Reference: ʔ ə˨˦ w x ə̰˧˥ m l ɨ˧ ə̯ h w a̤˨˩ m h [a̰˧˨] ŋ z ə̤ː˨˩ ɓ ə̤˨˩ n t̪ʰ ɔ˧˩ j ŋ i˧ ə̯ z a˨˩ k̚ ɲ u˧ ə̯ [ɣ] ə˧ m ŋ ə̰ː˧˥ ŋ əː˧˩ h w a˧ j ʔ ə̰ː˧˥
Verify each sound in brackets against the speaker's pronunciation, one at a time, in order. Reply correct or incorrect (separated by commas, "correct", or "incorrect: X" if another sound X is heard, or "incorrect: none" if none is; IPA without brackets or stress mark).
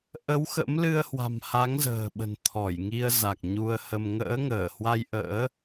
incorrect: a˨˦, incorrect: h